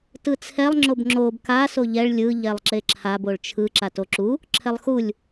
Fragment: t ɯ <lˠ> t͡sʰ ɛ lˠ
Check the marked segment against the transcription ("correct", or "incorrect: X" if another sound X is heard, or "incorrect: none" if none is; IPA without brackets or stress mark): incorrect: none